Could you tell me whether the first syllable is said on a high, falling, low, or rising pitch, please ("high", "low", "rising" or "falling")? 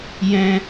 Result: high